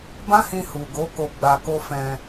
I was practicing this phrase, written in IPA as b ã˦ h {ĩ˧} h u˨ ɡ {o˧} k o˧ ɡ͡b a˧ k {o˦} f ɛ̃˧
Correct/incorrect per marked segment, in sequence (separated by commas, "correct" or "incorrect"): correct, incorrect, correct